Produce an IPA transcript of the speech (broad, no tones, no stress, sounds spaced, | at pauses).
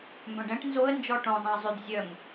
m b œ̃ ɖ ɛ̃ ʈ n z o ə̯ n d͡ʒ ɔ ʈ õ zˤ ɛ̃ ə̯ zˤ y d zʲ œ ŋ